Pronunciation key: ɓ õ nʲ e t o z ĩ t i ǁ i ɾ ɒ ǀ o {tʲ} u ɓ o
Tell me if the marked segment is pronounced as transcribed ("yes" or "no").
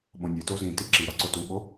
no